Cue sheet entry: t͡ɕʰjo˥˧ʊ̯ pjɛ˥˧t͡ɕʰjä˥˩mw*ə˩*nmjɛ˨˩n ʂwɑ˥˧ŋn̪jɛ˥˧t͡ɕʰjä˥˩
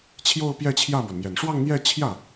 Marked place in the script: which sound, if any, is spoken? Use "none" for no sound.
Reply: ə˩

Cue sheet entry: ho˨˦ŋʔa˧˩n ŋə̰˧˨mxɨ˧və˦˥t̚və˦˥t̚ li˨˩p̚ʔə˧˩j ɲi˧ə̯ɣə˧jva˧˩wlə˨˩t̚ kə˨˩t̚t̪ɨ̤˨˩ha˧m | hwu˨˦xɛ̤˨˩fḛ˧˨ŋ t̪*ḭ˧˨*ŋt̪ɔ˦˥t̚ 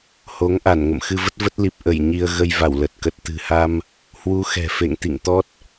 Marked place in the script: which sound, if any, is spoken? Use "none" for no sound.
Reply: ḭ˧˨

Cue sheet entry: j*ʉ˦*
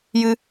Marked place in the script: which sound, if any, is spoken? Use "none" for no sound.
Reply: ɨ˦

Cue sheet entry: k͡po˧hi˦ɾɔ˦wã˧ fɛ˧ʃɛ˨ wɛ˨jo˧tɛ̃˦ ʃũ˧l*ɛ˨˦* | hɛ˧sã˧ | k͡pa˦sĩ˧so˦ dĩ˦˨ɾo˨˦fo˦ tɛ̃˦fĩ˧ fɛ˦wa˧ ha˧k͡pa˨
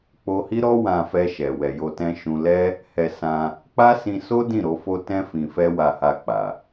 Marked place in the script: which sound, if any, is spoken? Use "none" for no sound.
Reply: ɛ˦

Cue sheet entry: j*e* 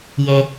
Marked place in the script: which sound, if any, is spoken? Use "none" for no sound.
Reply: e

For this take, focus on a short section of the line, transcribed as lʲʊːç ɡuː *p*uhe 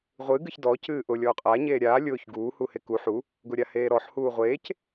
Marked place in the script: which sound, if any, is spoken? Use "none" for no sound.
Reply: h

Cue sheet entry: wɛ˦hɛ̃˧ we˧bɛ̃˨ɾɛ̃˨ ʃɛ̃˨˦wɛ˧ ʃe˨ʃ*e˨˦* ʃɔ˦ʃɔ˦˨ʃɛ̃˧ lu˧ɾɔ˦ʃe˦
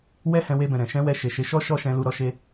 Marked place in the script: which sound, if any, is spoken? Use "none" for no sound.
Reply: e˨˦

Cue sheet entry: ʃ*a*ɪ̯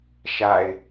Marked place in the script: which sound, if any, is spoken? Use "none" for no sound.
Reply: a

